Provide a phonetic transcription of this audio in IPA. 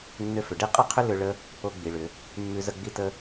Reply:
nːʏ˥fʏ˩˧ ɖi˥qʼʌ˥qʰʏ˥ lʏ˥ ɭə˥ | o˥ɡ͡bi˩˧ɭʏ˩˧ | mːʉ˥zə˥ɡ͡bi˥tə˥

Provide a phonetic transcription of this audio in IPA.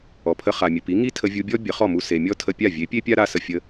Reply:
ɔ˩pʰə˧ χa˩mʲə˩pi˩˥ ŋi˥tʰə˧vʲu˧bʲɔ˥ bʲə˩˥χɔ˥˩mu˧ se˩mʲɔ˥tʰə˧ pʲa˥˩vʲe˩˥ pʲe˥pʲa˥ɾa˧ sə˩ fʲə˧

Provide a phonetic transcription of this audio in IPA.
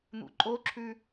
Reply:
n̪ṵǃʼoǁʰʉ

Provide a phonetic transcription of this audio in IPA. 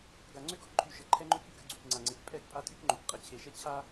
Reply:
ɡa˨ŋ͡ǀø˦ɡɔ˦kǃʰy˨ ʃə˨ǃʰɛ˦ŋ͡ǃø˦k y˨kə˦ɡ͡ǀy˨kŋ͡ǀa˨ ŋ͡ǀe˨kpʼɛ˦kpʼa˦tʼy˦k ŋ͡ǃo˨k qʼə˨t͡ɕʰe˨ʃɛ˦ t͡ɕʰa˦

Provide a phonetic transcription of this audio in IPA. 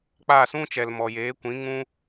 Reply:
k͡pa˦˨sũ˦t͡ʃɛ˨l mɔ˨jeː˨˦kʷĩ˨˦ ŋũ˧

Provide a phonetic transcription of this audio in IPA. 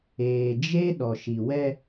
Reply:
eː˨d͡ʒe˦ ɗɔ˨ʃi˨wɛ˦

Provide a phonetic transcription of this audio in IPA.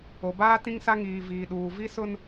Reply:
o˨baː˦ tĩ˦ŋsa˦ŋiː˨ viː˨ɗuː˨ vi˦sʊ˦n

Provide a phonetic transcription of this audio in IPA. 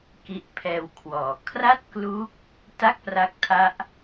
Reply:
ki˦˥ʔpʰɛː˧wkʰwɔː˩˦ kʰra˥˩t̚kluː˦˥k̚ | ta˥˩k̚pra˦˥k̚tʰa˦˥ʔ

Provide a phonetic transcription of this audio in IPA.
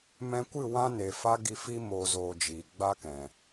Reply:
mɛ̃˧kʷɨ˦˨ wã˦ne˨fa˦ ɡi˧fi˦ moː˧zoː˧ d͡ʒiː˨ ɡ͡ba˦kɛ̃˨

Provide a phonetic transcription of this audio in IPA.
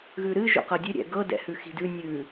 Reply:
ɣʉɾɨ ʒo̰qɤdʲɨ ɾʲɛ̰ɡɤ dɛ̰hʉxi̤dʉ nʲʉ

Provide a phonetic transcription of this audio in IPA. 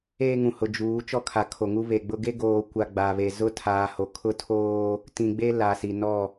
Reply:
eː˦ŋũ˨ hʊ˨d͡ʒuː˨˦ t͡ʃɔ˦kʰa˨kʰo˨ŋu˦ βe˨ɡ͡bʊ˦ ɡe˦ɡoː˨kʷa˨ ɡ͡ba˨βe˨ zʊ˦tʰaː˨ho˨ kʰʊ˦tʰoː˦ | tĩ˨ɡ͡be˦ la˨si˨ nɔ˦˨

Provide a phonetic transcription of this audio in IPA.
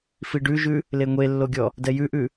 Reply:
fiɖʉʒʉ | leŋʷelːoɡʲɔ | dɛjʉʔʉ

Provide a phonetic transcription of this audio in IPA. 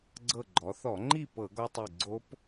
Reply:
ɡ͡ǀɤ˧˩ɡ͡ǃɔ˩˧θɔ˧˩˧ŋ͡ǃi˥˨ pɤ˧˩˧ɡɔ˧tˤe˧˩ ɡ͡ǀo˦˥p

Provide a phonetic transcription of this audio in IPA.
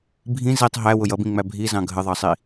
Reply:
bʱĩ zitˤ ɦæwʊ jʌbĩŋ͡mæ bʱizɑ̃ ɡʱəðˤɑsˤi

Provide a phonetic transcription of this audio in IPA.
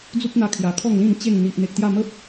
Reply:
d͡zu˦p̚n̪a˧ kʰja˨˩kʰɔ˥˧ŋlĩ˥˧n t͡ɕe˥˧ŋ n̪i˨ʔn̪e˨k̚t̪ja˥˧ mə˦p̚

